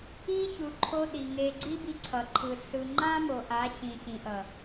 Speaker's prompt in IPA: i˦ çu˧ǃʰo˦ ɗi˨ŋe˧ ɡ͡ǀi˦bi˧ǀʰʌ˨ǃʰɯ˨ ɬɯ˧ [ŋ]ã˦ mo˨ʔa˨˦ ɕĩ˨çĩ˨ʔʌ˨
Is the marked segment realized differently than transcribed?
yes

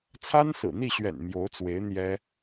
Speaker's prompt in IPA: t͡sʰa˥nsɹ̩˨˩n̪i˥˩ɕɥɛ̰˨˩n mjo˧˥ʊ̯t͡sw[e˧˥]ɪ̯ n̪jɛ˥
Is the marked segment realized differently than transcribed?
no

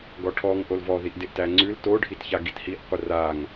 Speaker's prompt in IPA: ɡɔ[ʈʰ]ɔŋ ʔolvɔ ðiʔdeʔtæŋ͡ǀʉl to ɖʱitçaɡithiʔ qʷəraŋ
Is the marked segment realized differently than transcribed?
no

